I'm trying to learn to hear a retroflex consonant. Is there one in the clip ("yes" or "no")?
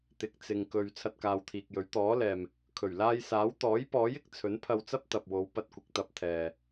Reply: no